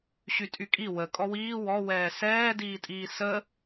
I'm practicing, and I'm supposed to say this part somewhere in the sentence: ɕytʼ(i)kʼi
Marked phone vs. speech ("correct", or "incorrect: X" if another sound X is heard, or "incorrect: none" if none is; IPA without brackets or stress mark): incorrect: y